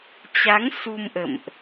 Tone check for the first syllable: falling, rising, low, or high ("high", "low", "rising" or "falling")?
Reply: rising